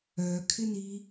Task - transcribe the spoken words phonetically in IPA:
œkʰɪni

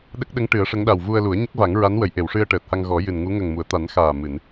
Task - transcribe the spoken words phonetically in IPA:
ɗə˦˥k̚ɗə˧˥ŋʈɨ˨˩˦ə̯ ʂə˧˥ŋɗa˨˩w vu˧ə̯lu˨˩˦ə̯ ɲə˦˥k̚va˨˩˦ŋɹa˧˥nwə˨˩˨j ʔe˨˩˨wʂɨ˧ə̯ ʈəː˨˩t̚ha˧ŋɣɔ˨˩˦ jɨ˨˩nŋu˧˥ ŋə˨˩ŋmu˨˩˨ə̯t̪a˨˩˦n xaː˨˩ mɨ˨˩˨n

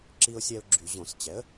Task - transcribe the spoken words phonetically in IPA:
ǁi˧ʊ̯sʲɛ˧ʊ̯ ɡ͡ǁy˧˩˧ʑõ˧˩˧s t͡ɕɛ˩˥ə̯

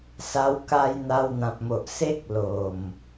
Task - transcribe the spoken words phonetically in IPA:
sa˧wka˧j n̪a˧wn̪ã˨p̚mo˨ʔ se˦k̚ lo˨˩m

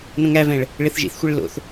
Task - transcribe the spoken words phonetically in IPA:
nõŋævɛ̃ɭ | ɭeθʒḭθxʷɛɭ lo̰θ

